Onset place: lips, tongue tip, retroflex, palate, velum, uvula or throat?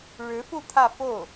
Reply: retroflex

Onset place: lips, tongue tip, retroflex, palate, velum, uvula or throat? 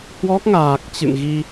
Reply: throat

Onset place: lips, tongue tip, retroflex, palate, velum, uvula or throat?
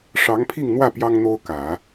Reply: retroflex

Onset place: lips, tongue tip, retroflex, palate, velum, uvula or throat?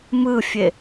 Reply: lips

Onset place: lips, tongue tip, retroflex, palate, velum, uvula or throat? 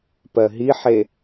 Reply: lips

